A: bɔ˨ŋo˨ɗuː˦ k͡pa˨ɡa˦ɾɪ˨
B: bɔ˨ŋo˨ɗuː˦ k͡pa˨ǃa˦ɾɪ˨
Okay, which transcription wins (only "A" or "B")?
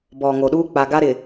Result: A